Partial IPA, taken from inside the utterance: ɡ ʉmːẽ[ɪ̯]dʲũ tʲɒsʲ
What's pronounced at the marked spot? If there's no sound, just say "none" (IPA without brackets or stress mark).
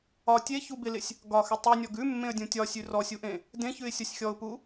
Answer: ə̯